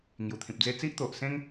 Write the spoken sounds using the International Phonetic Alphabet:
ŋju˨˩t̪ʰĩ˨p̚d͡ze˦ t͡si˦ʔt̪o˨ʔsẽ˦ŋ

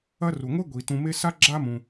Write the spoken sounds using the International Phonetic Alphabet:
ɐ˦ru˩ŋʷe˥ ɡʷi˩ tũ˨me˦sa˥ ɡ͡ǁa˥ mũ˩

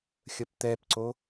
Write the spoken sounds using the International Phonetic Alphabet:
xʲəpt̪ɛpǀo

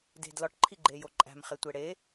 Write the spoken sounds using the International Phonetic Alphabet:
de̤dlɒʈ ǃʰiɡ͡ǃejoǃʼæ̤m χetʷeɽe

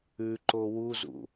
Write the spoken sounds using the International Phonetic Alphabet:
ʉǃo wuzṵ

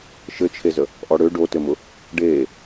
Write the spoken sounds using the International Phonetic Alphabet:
ʃɘt͡ʃʰezə | ʔɔɽø ɖotɘmʊ | ɖeː

